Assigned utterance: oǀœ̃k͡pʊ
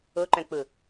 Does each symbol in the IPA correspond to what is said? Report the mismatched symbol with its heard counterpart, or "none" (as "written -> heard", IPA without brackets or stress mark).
ǀ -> ǃ